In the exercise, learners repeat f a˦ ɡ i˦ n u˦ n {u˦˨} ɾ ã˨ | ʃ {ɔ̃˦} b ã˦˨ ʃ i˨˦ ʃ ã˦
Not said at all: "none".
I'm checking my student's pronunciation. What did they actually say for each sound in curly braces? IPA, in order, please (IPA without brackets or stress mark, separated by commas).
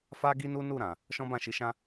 u˦˨, ɔ̃˦